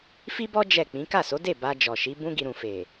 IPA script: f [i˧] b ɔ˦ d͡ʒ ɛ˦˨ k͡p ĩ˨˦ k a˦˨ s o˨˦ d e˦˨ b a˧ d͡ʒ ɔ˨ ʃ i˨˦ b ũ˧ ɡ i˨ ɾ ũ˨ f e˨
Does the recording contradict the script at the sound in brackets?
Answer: yes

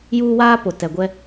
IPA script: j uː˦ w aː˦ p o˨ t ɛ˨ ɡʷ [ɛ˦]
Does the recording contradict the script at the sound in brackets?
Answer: no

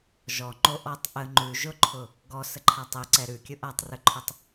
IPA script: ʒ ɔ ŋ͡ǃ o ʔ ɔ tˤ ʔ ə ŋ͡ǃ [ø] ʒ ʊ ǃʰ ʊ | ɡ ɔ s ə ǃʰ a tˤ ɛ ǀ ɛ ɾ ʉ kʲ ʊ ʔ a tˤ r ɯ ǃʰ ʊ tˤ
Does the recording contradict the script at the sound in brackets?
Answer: yes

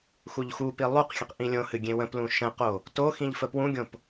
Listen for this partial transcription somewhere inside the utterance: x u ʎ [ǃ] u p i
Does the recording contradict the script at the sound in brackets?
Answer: yes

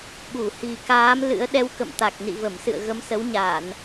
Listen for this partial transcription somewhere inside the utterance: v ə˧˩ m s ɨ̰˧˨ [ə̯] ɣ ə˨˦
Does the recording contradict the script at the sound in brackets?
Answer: no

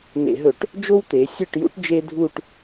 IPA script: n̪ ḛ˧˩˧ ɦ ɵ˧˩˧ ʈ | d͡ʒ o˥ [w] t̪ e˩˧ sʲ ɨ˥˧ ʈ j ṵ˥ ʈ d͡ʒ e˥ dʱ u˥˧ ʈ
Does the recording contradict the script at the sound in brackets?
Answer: no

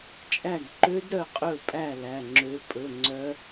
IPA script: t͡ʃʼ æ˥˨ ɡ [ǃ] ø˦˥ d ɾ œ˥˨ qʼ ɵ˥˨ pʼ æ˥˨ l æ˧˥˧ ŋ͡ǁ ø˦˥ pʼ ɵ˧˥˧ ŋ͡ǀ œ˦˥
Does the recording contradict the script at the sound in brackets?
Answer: no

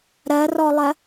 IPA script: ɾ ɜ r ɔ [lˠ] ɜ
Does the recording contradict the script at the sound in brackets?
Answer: no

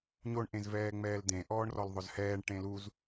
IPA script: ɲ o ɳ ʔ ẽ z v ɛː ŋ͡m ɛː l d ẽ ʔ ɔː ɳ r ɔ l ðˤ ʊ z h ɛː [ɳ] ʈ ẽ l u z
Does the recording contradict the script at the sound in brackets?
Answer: no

